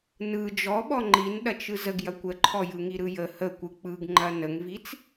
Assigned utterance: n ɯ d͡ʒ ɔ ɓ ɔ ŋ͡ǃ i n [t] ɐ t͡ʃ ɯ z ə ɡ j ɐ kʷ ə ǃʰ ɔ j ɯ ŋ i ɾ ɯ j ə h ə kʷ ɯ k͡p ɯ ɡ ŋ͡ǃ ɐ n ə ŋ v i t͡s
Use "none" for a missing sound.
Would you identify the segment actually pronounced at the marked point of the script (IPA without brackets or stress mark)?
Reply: ɗ